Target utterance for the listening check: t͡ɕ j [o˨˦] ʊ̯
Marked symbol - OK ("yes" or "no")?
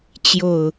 no